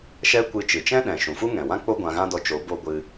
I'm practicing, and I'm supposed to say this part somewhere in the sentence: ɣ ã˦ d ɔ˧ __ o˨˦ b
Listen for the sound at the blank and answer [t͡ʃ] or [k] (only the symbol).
t͡ʃ